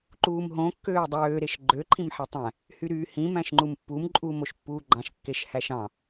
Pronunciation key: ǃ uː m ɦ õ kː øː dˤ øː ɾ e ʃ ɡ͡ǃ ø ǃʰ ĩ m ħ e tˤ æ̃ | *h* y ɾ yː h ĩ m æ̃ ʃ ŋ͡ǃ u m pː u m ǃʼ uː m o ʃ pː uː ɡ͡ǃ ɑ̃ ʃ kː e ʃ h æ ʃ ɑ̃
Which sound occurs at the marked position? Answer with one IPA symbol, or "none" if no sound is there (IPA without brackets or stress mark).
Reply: h